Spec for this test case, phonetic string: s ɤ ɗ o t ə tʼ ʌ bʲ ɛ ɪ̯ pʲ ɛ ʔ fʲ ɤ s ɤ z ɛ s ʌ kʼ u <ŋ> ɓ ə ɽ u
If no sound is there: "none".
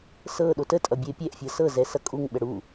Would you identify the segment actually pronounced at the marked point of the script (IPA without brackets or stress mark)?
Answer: ŋ